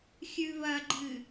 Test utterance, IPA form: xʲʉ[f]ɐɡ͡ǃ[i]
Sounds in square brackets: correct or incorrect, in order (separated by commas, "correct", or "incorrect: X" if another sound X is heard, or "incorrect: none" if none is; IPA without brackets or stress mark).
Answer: incorrect: β, incorrect: ɨ